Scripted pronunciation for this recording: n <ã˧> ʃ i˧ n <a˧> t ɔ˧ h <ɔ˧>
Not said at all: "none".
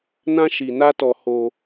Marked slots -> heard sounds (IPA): ã˦, a˦, o˧

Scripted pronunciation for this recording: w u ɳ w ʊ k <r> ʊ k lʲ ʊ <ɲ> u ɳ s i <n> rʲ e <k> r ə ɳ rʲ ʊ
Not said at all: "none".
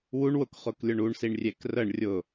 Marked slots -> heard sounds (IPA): χ, ɳ, ɳ, k

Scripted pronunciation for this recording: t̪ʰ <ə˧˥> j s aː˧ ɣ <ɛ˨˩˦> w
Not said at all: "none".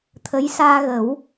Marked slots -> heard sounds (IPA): ə˧˥, ə˨˩˦

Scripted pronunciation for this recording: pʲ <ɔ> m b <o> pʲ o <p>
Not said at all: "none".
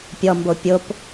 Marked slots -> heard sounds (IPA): ɔ, o, p

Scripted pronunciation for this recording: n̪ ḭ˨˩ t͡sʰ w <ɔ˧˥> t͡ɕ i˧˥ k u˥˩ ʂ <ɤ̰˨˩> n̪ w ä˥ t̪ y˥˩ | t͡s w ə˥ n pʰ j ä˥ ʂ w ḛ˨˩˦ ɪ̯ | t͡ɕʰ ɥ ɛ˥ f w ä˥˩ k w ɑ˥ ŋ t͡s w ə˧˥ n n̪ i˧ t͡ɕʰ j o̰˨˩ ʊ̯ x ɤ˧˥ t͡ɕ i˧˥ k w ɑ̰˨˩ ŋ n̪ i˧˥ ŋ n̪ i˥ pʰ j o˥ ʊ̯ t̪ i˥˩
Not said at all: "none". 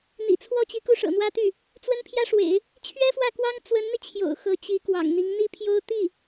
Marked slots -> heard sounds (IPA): ɔ˥˩, ɤ̰˨˩

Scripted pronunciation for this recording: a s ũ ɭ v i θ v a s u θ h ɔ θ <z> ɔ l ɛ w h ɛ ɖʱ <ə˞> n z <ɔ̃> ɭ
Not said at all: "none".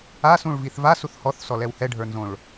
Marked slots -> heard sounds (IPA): s, ə˞, õ

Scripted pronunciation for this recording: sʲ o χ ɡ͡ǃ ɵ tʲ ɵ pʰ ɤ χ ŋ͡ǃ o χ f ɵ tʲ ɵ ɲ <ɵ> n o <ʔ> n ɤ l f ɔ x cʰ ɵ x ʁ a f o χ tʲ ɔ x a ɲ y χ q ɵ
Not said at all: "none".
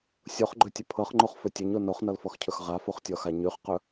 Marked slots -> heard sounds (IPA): o, χ

